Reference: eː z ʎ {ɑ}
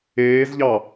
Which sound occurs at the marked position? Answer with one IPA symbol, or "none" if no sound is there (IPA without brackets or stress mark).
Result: ɑ